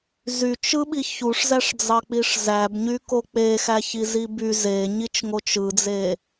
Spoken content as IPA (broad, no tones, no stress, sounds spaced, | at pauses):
z y t͡ʃ ɯ ɓ i ç u ʂ z æ ʂ d͡z ɑ k͡p i ʂ z æ b ɲ y k o k͡p e x æ ç i z i b y z e ɲ i t͡ʃ ŋ o t͡ʃ ɯ d͡z e